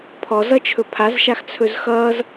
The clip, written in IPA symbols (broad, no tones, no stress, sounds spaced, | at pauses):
pʰ ɔ z ʌ t͡ʃʰ ɵ pʰ a z ʃ a x t͡sʰ ɵ z x ʌː z